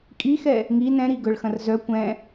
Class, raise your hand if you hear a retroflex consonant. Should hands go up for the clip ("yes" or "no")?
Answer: yes